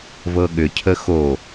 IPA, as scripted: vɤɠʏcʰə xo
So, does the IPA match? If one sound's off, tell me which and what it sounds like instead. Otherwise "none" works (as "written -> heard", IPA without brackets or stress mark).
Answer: none